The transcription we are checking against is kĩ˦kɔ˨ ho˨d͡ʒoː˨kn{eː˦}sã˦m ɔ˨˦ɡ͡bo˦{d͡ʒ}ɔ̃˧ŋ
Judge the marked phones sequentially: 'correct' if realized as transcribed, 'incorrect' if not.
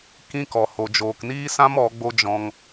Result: incorrect: iː˦, correct

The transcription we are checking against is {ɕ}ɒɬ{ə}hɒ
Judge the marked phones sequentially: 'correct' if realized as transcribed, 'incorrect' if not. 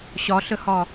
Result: correct, correct

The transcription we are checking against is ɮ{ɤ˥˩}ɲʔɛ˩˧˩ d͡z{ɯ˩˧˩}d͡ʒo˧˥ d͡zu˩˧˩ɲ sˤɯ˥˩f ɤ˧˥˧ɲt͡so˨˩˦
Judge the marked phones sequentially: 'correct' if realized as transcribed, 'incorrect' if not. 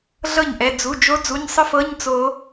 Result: correct, incorrect: u˩˧˩

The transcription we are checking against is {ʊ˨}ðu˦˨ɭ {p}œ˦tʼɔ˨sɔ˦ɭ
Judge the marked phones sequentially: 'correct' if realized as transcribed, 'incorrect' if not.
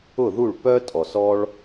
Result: incorrect: ʊ˦˨, correct

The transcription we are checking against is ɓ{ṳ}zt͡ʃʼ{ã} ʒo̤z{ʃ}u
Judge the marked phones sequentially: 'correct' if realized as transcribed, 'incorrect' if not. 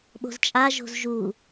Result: incorrect: o̤, incorrect: a, incorrect: ʒ

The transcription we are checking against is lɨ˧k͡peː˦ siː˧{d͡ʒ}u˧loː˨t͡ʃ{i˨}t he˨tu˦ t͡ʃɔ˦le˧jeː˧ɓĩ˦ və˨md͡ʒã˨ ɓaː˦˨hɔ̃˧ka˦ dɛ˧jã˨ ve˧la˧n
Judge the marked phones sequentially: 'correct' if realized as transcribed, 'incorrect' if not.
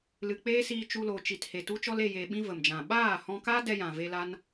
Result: incorrect: t͡ʃ, correct

